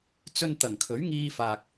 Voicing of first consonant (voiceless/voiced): voiceless